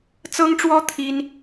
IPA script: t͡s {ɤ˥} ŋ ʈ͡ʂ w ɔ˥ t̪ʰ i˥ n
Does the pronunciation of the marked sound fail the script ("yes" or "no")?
no